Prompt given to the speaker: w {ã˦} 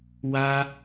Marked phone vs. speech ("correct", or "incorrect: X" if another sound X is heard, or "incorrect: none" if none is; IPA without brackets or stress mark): incorrect: a˦